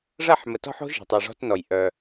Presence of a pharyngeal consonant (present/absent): present